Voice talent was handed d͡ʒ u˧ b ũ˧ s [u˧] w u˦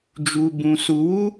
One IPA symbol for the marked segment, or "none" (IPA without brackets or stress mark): u˧